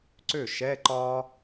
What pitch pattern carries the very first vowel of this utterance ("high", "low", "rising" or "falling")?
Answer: falling